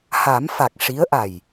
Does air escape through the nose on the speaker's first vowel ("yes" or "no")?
no